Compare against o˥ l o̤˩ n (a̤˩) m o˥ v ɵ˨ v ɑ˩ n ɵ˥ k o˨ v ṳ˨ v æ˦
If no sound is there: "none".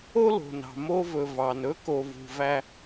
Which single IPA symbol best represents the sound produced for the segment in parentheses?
ɑ̤˩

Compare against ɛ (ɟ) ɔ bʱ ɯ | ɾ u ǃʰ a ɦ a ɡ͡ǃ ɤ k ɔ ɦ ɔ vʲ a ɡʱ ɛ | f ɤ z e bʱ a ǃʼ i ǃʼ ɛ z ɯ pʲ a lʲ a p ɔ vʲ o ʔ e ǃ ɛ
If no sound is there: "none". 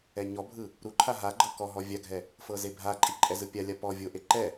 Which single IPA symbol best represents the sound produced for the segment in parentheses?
ɲ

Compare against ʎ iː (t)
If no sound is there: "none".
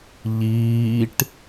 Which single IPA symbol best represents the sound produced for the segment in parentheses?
ʈ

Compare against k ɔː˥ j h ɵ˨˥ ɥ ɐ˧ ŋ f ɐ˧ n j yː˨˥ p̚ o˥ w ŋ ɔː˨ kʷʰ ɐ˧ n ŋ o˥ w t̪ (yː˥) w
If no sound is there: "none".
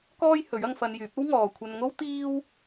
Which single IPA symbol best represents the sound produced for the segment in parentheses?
iː˥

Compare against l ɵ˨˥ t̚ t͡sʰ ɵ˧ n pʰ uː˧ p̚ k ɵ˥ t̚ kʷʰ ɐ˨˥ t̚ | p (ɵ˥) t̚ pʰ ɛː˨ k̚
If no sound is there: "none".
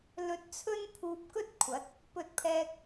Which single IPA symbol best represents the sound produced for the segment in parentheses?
ɵ˨˥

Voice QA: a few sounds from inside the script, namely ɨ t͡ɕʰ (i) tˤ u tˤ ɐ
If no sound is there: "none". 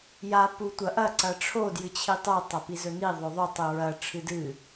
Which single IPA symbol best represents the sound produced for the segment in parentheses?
i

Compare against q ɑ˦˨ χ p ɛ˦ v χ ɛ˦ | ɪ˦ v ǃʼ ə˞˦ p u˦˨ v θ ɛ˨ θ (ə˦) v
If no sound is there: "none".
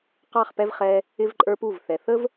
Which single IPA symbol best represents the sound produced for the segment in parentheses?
ə˦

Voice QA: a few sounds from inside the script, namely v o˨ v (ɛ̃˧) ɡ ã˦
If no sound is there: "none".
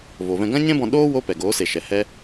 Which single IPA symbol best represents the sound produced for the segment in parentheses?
ɛ̃˧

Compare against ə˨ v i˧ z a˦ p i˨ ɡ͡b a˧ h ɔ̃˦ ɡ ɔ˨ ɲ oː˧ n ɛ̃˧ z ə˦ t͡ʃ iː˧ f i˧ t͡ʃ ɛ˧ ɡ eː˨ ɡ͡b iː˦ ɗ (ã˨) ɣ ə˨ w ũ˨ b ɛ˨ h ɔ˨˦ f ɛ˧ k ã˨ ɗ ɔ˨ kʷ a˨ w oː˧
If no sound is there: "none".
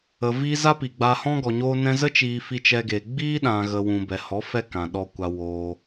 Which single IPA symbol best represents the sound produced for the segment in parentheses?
ã˨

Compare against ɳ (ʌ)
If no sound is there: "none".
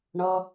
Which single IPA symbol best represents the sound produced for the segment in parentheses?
ʌ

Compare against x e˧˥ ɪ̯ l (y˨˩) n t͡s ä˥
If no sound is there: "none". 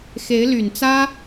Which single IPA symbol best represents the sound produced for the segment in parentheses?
y˨˩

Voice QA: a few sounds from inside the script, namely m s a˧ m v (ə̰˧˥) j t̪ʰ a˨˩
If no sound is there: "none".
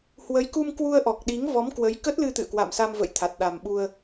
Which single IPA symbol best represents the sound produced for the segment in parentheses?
ə̰˧˨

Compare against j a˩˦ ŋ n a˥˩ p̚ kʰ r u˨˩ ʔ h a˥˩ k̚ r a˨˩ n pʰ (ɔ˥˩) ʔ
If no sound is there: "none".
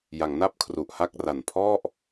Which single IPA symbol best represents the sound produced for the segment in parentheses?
ɔ˥˩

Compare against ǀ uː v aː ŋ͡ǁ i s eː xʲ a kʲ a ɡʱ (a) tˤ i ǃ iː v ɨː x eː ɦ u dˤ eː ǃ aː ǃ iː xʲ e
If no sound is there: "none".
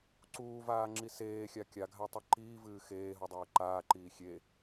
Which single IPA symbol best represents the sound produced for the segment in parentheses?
a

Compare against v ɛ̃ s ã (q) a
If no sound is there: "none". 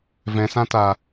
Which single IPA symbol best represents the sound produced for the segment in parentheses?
t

